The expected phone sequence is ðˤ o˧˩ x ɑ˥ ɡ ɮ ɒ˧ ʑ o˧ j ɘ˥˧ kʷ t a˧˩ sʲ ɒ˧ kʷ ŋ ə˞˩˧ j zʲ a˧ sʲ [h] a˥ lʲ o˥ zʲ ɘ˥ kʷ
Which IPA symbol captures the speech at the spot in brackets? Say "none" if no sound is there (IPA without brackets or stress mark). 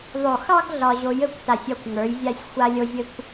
xʷ